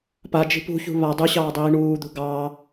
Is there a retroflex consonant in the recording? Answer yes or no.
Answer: yes